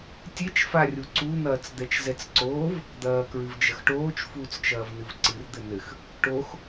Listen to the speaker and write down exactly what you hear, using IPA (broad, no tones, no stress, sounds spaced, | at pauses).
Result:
tʲ e t͡ʃ f a rʲ u ǀ u n̪ ɐː t͡s d̪ ɛ t͡ʃ z ɛ t͡s ǀ oː v | d̪ ɐː k ɹ ɨ v d͡ʒ ɐ x ʈ oː t͡ʃ f uː t͡s t͡ʃ ɐː v n ɨ v ǀ ɨ r d̪ ɘ n ɘ x | ʈ o x